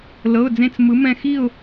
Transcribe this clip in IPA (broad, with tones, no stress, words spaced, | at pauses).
lɤ˩˧˩ʊ̯d͡zẽ˧˩t͡s mɯ˩˧ mɛ̃˧˩xi˥˨ʊ̯